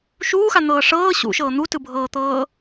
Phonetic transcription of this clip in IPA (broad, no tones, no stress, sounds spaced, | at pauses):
ʃ uː x a n̪ ɤː ʂ ɤː ɕ ṵ ʃ ɤː n̪ u t ɯ bʱ ɤː t̪ ɤː